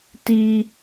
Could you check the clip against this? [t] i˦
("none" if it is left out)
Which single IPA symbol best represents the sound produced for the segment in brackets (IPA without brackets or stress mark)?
t